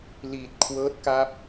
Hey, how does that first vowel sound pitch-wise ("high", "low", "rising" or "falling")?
low